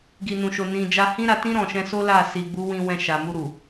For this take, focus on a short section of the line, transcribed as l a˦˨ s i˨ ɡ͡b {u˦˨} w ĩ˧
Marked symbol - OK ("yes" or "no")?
no